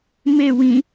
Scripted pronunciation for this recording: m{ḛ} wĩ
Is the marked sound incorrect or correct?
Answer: incorrect: e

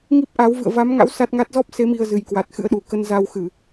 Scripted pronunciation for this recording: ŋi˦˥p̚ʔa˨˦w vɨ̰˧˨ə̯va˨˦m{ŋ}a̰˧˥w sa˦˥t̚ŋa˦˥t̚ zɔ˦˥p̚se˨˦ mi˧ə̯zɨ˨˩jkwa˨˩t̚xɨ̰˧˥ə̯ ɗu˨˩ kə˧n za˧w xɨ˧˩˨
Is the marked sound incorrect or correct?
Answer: correct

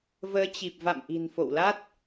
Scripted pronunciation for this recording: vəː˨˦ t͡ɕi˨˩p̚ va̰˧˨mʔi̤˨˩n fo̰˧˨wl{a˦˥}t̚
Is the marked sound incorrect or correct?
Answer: correct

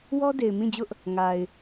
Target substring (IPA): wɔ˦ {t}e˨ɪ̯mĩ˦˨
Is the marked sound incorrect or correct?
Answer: incorrect: d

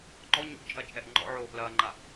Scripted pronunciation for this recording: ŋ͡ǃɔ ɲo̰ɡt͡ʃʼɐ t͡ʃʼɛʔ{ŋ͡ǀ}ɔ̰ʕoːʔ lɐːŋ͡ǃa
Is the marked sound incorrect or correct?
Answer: incorrect: ŋ͡ǃ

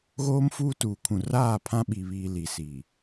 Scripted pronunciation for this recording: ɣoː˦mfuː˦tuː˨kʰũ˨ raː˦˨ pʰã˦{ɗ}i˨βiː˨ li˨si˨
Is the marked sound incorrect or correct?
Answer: incorrect: ɓ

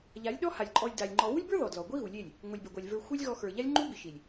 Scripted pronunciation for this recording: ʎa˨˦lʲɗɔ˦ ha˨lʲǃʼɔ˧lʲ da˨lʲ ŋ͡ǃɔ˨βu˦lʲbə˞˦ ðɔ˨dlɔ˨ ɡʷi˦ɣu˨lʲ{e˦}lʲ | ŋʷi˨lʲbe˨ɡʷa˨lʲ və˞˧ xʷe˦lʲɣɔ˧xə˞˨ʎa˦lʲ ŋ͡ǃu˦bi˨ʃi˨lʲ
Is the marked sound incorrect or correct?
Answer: incorrect: e˦˨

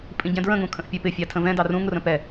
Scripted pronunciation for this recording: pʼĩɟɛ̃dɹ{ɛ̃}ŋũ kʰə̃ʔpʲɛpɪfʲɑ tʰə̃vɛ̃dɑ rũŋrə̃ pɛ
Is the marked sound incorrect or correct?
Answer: incorrect: ə̃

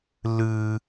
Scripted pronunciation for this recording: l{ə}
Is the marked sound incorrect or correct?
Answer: incorrect: ɨ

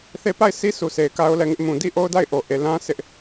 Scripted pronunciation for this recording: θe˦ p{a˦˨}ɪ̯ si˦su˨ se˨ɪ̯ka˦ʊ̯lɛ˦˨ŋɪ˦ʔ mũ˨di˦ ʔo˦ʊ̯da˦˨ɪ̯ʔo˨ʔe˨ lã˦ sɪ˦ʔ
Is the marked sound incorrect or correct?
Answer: correct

